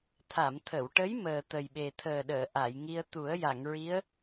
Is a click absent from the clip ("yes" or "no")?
yes